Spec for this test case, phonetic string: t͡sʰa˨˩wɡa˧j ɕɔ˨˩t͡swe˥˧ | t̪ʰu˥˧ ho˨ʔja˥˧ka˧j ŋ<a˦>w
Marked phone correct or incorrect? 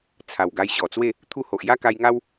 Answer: correct